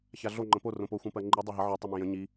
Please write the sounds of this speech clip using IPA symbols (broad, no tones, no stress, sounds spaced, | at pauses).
ç a ɮ o ŋ͡ǃ ə̃ p o r õ p o xʷ ẽ p ɜ ŋ͡ǃ i dˤ e ɦ ə ʕ i tˤ i m ẽ j ə̃ ɲ i